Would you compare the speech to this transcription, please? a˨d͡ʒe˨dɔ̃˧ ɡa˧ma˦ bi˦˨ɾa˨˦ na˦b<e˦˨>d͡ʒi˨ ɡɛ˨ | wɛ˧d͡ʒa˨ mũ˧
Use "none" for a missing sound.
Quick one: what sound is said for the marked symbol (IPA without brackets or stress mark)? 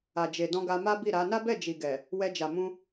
ɛ˦˨